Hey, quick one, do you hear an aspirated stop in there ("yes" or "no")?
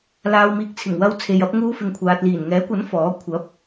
yes